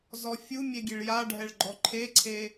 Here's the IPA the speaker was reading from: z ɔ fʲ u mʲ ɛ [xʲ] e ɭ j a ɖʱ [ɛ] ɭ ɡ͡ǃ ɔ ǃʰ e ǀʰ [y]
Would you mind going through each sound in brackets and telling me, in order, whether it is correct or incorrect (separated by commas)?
incorrect, correct, incorrect